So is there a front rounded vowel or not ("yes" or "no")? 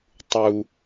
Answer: no